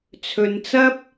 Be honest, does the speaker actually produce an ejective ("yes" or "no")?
no